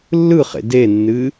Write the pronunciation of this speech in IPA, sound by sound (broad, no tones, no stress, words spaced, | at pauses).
lːɯχḛ denːɨ